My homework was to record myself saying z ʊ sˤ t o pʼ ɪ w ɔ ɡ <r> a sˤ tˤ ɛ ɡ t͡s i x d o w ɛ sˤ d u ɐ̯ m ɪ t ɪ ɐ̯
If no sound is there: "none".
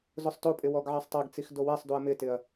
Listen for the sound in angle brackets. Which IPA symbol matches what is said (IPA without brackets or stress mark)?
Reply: ʕ